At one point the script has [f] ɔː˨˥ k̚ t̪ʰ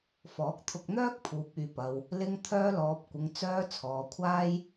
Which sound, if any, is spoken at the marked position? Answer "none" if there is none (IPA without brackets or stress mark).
f